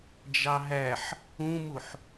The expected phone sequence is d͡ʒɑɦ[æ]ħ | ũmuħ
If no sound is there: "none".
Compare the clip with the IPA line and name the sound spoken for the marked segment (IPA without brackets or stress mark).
æ